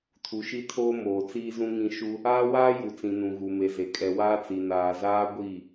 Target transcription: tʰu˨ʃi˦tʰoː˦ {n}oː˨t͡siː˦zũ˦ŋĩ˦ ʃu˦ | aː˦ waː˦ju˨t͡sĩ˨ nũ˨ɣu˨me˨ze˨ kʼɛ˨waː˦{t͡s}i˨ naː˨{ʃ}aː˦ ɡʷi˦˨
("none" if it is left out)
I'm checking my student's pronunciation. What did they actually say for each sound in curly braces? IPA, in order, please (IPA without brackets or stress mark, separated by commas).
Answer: m, t͡s, z